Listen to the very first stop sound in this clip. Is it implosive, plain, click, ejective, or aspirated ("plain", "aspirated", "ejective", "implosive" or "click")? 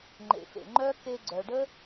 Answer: click